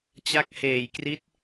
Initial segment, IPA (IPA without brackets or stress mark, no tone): t͡ɕ